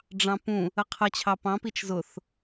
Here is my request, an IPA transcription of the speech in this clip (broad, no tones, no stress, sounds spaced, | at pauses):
ɖ͡ʐ ɑ̃ p ũ | ə qʰ ʌ t͡ɕʰ ɑ p ɑ̃ p i t͡ʃ z ʊ θ